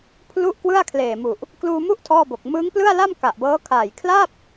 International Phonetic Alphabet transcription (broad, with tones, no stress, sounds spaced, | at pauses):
pʰ l u˥˩ ʔ k w ɯ˥˩ a̯ kʰ l eː˨˩ m u˨˩ ʔ | k l uː˧ m u˥˩ ʔ tʰ ɔː˥˩ b o˨˩ k̚ m ɯː˦˥ ŋ p l ɯ˥˩ a̯ l a˥˩ m k a˨˩ ʔ b ɤː˦˥ kʰ aː˨˩ j kʰ l a˥˩ p̚